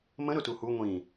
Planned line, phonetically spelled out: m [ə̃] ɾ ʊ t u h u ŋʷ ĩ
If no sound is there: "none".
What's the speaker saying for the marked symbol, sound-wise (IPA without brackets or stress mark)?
ə̃